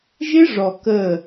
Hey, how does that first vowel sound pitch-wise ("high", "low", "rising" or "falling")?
high